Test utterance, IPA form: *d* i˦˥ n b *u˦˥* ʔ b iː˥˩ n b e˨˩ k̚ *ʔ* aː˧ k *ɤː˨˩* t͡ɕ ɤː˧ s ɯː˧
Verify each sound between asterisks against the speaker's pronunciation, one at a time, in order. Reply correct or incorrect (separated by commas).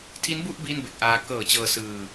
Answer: incorrect, incorrect, correct, correct